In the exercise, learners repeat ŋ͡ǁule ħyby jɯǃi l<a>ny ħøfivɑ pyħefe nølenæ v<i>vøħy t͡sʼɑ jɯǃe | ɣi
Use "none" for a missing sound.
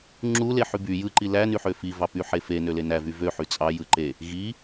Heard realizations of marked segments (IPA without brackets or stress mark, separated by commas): æ, y